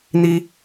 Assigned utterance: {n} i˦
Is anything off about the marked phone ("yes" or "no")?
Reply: no